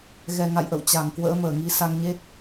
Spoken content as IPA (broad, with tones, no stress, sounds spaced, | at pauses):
ɣ ɛ˨˩ ŋ a̰˧˨ j ʔ ə̰˧˨ w t͡ɕ a˨˩ ŋ k w ə̰ː˧˥ m əː˧˩ ŋ i˨˦ s a˧ ŋ ɲ e˦˥ t̚